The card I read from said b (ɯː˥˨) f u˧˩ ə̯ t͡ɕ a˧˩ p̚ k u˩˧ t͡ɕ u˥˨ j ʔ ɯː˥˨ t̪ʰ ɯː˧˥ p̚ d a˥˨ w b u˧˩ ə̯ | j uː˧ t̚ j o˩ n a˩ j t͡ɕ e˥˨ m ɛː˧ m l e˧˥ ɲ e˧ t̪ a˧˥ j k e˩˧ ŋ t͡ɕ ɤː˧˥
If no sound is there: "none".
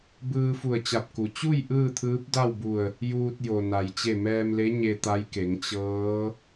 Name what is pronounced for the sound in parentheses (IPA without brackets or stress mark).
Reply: ɯː˧